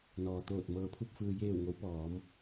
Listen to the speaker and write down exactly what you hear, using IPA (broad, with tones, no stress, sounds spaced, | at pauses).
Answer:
n ɔː˩ t̪ oː˧˩ t̚ m ɤː˩ pʰ u˧˩ p̚ f ɯː˩ j eː˧˩ w ŋ o˩˧ w p ɔː˩˧ m